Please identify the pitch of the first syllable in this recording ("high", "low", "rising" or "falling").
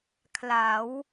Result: rising